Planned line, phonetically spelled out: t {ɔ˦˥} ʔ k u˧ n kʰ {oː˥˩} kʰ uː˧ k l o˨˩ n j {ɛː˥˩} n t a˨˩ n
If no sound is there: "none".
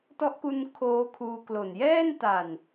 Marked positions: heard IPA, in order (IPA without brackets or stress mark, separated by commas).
ɔ˦˥, oː˦˥, ɛː˥˩